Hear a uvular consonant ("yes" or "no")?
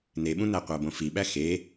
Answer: yes